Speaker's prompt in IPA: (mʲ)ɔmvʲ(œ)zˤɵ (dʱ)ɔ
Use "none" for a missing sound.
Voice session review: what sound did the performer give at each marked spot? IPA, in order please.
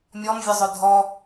mʲ, œ, dʱ

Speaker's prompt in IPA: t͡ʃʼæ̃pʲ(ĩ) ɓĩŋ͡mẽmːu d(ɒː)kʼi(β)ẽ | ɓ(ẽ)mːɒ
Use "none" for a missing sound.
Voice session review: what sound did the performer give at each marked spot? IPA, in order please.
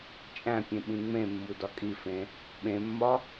ẽ, ɒ, f, ẽ

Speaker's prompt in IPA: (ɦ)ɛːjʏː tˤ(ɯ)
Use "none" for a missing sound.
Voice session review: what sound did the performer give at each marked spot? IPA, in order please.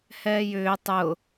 h, ʊ

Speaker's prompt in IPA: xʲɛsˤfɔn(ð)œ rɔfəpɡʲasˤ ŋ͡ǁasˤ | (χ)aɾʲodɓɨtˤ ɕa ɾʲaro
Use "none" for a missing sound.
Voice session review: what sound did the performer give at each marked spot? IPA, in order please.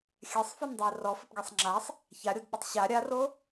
dˤ, ç

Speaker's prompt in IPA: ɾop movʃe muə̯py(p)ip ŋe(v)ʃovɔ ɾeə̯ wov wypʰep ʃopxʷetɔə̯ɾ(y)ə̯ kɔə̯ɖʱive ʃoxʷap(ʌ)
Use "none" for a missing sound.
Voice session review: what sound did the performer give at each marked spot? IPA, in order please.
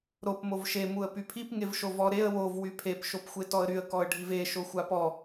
pʰ, v, y, ɔ

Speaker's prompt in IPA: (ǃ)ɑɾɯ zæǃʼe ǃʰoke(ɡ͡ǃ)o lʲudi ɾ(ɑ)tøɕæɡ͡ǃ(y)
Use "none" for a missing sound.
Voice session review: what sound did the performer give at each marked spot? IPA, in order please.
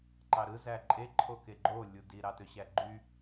ǃ, ɡ͡ǃ, ɑ, y

